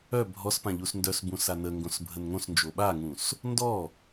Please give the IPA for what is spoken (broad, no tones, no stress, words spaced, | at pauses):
œ bʱɔs pãʎusndœsbũ sanəŋɡõs bʱənŋõsnd͡ʒo ɓaŋũs | ndɔ